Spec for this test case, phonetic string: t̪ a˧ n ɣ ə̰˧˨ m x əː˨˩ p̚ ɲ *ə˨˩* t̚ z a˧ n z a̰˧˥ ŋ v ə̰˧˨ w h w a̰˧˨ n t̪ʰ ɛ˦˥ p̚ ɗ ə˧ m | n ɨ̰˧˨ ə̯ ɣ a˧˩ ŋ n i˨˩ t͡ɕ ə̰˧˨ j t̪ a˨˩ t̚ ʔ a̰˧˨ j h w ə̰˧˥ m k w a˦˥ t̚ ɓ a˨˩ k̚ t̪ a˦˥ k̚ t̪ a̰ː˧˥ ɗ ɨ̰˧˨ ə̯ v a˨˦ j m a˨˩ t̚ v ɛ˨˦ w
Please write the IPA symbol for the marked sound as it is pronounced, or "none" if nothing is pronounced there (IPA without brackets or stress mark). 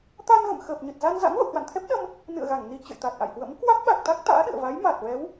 ə˨˩